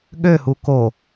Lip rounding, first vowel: rounded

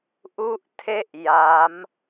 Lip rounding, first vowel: rounded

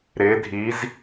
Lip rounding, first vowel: unrounded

